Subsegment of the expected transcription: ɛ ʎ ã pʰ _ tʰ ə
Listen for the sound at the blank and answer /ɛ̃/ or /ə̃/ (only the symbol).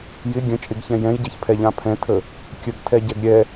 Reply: ɛ̃